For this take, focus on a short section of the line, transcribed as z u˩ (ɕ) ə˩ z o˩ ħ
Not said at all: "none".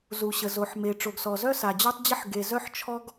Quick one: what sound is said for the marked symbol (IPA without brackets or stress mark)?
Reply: ɕ